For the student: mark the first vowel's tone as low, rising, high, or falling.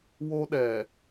high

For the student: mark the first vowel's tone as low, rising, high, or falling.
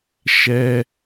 high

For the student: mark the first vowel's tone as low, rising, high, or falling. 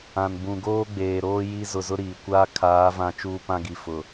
low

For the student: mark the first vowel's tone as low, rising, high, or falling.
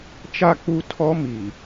falling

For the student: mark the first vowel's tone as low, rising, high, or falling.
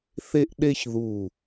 high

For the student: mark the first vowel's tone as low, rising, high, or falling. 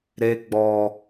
low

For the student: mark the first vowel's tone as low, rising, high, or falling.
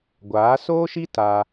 rising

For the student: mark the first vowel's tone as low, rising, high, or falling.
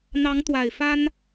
rising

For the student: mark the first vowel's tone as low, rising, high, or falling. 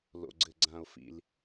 low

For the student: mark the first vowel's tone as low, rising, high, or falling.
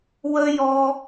high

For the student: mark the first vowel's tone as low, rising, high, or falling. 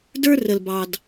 high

